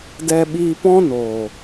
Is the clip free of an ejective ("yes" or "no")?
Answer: yes